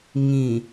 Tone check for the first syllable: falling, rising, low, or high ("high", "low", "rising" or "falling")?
low